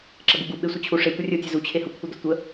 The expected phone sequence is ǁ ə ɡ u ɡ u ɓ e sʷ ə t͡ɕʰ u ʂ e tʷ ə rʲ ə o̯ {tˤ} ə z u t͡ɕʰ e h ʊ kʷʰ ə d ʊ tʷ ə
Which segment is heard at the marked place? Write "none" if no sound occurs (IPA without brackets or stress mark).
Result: tʲ